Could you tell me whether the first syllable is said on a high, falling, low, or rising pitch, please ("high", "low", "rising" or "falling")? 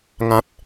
high